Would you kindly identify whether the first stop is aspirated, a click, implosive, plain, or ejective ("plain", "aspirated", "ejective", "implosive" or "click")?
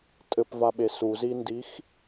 ejective